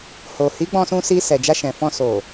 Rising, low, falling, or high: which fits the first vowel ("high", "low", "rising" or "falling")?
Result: low